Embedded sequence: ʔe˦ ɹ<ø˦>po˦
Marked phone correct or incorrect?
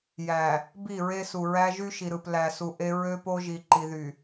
correct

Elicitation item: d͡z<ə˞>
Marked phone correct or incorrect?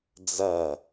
incorrect: ɐ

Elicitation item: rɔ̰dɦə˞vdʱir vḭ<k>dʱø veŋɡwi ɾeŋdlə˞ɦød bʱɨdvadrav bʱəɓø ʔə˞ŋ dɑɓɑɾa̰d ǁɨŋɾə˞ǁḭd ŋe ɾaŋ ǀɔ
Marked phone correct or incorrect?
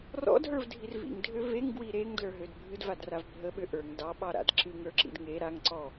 incorrect: ŋ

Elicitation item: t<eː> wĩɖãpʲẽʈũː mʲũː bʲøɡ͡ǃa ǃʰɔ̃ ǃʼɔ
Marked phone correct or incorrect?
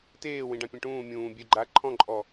correct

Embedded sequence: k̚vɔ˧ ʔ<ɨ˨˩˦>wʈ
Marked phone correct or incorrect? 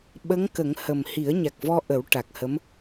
incorrect: ə˨˩˦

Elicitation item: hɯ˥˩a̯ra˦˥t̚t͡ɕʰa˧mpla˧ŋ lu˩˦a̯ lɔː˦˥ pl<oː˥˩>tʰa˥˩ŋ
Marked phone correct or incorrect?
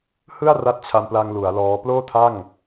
correct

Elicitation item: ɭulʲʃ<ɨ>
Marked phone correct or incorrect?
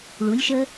incorrect: ə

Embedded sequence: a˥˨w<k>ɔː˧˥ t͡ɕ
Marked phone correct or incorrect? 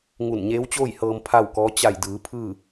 correct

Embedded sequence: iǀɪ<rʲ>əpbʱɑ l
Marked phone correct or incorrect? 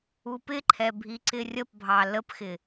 correct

